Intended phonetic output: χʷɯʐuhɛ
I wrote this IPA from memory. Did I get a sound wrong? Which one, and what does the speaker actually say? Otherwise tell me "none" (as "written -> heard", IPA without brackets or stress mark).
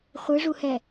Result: none